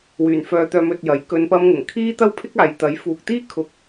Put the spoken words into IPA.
wyː˨˩nfœː˨˧t̪œː˧m ɵ˧t̚jɐ˨˥j kɵ˨˧npɐ˧mŋʊ˨˩ŋ kʰiː˥t̪ɐ˥wpʰɪ˥k̚ aː˨˧jt̪ɐ˨˥j fuː˨k̚t̪iː˥kʰʊ˨k̚

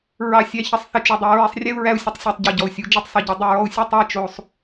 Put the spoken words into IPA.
ɹɑ˧sʲæ˧ çə˧sˤ θə˧t͡ʃu˨dˤæ˧ ɹɛ˧sˤrʲɛ˦u̯ ɹæ˦u̯sʲə˧tˤsʲæ˧tˤ ɟi˨ɟɔ˨u̯sʲu˨˦ d͡ʒi˦tˤsˤɯ˨ɟo˧ dˤu˧ɹɔ˧u̯sʲu˦ tˤæ˦˨ t͡ʃo˧sˤ

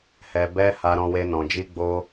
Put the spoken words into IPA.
hɛ˧bɛ˦ ha˧ɾɔ̃˧we˧ nɔ̃˨d͡ʒi˧ɡ͡bo˧

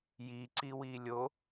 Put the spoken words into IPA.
ji ǀiwiːlʲo

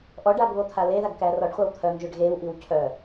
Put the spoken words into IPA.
ʔɔɖaɡβot̪ʰa leðaɡkæ rɔɖχʷaw t̪ʰœŋʒøɖ ɣewʔiw cʰœ

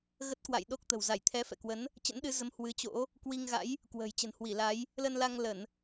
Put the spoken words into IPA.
ɣə˦˥t̚kwa̰˧˨j ɗo˦˥k̚t̪ə̤˨˩w za˧˩jt̪ʰɛ˨˦fɛ̰˧˨kwə˨˦n | t͡ɕə̰˧˥nɗɨ˨˦zə˨˦m hwɨ˨˦t͡ɕo̰˧˥ | kwi˧ŋɣa̰˧˥j | kwə̤ː˨˩j t͡ɕə̤˨˩nhwi˧˩la˨˦j | lə˧n la˧ŋlə˧˩˨n

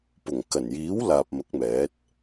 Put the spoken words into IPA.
pʊ˨˩ŋkɐ˨˩njiː˨˥w laː˨p̚mɐ˨˥k̚mɛː˨˥t̚

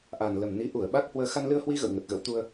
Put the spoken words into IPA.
ʔa˨˩nlə˨˩mni˨˦ ʔu˧˩ə̯ ɓa˦˥k̚hwəː˧ xa˧nlɨ˧ə̯hwi˧ ɣə̰˧˨w ŋə˨˩t̚ɣə̰˧˥wt̪u˧ə̯

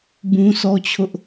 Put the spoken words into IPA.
bũ˦sɔ˦t͡ɕʰʊ˦ʔ

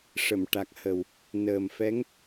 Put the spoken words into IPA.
ʂə˨˩˨m ʈa˨˩k̚hə˨˩w | nəː˨˩mfɛ˧˥ŋ

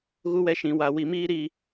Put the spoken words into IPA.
ɣu˦wɛ˦ʃĩ˨wa˨ wi˨miː˦ɾi˦˨

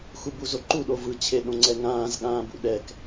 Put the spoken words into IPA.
xubuzoǃu ɗovɯ t͡ɕʰeɗõŋ͡ǀɛŋãːz ɠãːbṵɗɛk

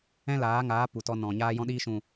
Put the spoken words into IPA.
ɛ̃˦laː˨˦ŋaː˨˦ pu˨tɔ˧ nɔ̃˨ ɲaː˧jɔ̃˧ɗiː˧ʃũ˨

